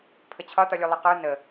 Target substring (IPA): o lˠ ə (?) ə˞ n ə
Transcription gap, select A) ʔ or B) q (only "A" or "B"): B